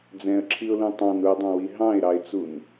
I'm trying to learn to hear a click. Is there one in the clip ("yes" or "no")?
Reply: yes